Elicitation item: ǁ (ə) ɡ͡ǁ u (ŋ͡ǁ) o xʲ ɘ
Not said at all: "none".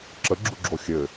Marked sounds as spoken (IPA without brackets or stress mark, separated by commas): ə, ɡ͡ǁ